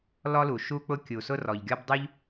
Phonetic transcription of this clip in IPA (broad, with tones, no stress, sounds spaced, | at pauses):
l ɔ˥ l u˩ ʃ u˥ k͡p ʊ˥ kʲ u˩ s ʊ˥ r ɔ˩ ʎ ɡʲ ɔ˥ b dˤ u˥ ʎ